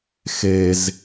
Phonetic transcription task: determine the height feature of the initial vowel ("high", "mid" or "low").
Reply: mid